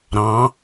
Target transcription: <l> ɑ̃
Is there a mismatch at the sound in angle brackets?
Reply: yes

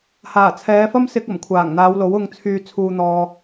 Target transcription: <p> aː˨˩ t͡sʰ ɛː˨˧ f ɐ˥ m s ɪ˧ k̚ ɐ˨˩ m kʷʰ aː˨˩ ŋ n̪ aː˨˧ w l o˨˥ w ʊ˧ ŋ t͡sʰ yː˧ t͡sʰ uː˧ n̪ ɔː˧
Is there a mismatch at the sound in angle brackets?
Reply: yes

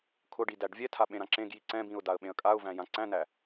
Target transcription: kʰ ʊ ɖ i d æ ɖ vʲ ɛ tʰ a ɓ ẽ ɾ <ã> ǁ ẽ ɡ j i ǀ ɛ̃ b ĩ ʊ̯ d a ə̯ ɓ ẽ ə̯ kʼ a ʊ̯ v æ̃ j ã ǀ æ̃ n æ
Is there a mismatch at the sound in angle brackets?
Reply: no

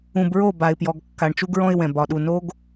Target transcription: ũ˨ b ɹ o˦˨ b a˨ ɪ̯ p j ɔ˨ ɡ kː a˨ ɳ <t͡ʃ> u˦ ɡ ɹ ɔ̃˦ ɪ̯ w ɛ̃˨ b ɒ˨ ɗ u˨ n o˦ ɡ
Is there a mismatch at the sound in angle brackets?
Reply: no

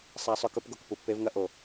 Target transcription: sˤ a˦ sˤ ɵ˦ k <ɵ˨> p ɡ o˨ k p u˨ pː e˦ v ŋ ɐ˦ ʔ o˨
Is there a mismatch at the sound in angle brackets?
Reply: yes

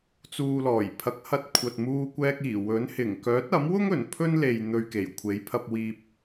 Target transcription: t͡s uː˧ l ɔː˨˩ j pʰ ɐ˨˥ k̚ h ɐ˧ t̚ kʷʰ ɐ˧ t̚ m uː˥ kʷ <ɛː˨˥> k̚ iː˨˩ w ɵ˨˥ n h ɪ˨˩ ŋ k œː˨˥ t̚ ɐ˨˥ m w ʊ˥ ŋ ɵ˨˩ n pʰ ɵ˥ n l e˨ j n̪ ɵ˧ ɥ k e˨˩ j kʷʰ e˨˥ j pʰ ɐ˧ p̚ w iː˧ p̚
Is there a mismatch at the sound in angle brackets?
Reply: yes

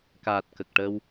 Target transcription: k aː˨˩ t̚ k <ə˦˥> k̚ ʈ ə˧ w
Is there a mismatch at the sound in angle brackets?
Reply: yes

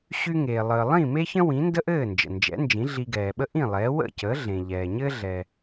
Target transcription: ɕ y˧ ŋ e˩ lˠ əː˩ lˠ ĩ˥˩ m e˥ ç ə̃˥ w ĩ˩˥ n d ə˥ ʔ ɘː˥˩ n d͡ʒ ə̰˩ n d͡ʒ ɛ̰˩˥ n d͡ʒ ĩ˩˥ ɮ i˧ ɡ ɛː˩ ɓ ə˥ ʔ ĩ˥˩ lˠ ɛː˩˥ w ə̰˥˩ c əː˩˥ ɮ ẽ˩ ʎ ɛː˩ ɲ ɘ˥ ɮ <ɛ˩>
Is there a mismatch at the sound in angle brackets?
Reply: no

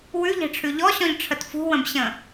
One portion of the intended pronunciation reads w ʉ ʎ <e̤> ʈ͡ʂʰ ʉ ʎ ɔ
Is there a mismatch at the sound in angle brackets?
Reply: no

